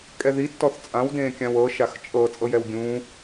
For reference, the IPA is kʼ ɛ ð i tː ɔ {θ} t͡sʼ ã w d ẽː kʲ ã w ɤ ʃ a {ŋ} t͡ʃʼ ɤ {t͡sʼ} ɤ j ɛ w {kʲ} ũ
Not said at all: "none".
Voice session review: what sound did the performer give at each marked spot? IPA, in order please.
θ, x, t͡sʼ, ɡʲ

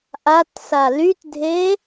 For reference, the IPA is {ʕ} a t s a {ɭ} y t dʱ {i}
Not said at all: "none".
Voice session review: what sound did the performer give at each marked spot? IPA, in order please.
ʔ, l, e

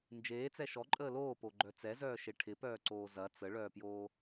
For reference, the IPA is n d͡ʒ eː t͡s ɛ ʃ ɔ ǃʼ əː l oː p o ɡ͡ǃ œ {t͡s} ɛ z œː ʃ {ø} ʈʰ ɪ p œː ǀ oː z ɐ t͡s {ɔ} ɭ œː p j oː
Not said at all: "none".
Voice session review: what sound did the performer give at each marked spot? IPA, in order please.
t͡s, e, ə

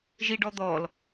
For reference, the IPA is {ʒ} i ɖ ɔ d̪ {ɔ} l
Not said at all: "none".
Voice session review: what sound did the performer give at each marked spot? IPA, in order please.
ʒ, ɔ

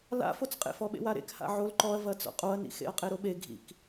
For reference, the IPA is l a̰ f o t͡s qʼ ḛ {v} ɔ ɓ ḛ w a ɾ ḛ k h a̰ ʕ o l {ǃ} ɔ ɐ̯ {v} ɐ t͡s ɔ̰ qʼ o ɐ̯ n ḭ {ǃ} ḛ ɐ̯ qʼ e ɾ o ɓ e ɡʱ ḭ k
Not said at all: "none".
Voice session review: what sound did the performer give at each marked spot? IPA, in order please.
f, ǃ, v, x

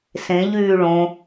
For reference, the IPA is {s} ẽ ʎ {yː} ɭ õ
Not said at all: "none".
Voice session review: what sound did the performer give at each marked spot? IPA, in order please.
s, yː

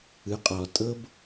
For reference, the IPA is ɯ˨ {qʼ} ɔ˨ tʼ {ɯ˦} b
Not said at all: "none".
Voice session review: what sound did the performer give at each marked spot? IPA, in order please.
qʼ, ɤ˦

